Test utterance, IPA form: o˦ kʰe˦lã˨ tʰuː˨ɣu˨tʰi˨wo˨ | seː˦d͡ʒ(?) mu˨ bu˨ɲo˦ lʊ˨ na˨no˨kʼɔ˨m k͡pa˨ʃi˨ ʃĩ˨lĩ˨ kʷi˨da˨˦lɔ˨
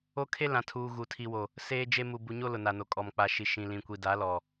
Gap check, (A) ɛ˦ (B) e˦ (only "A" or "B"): B